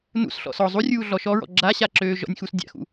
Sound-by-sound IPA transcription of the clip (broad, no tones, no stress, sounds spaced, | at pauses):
n ṵ s ɬ ɔ̰ s ɔ zˤ u rʲ uː ɮ ɔ ʃ ɔ ɹ ɔ̰ ɡ͡ǁ a ɕ a ǁ øː ʒ ɔ̰ nʲ x u s dʲ a̰ x ṵ